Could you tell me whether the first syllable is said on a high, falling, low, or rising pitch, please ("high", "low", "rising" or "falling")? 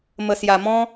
low